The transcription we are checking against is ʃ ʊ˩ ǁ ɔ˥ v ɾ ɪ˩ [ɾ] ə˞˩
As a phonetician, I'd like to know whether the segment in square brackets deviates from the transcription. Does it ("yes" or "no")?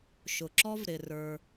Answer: yes